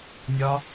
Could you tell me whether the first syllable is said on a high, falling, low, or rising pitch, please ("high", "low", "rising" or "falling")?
high